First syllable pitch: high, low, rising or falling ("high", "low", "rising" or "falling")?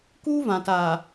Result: high